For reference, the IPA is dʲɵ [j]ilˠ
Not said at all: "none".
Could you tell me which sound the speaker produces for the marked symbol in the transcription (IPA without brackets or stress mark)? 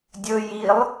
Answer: j